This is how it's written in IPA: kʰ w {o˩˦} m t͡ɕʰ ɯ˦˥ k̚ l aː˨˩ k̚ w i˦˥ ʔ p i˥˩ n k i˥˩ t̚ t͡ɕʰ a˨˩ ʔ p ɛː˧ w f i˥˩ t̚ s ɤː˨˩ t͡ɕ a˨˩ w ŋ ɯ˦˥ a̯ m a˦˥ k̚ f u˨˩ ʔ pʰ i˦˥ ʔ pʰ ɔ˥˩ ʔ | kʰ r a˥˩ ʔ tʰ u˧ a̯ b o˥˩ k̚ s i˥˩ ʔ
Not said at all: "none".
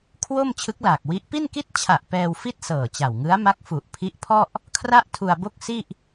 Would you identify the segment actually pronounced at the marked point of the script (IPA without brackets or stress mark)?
o˥˩